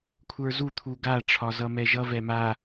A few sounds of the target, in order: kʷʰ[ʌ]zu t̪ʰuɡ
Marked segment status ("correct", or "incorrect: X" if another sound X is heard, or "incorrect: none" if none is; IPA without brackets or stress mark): incorrect: ə˞